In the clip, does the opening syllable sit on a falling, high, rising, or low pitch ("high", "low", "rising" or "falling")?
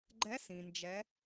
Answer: rising